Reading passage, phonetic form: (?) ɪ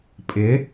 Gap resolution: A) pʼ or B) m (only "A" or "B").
A